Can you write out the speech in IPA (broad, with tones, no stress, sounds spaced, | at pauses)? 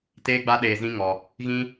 t eː˧ ɡ͡b a˧ ɗ eː˨ z ĩ˧ ŋ ɔ˨ | ɣ ĩ˧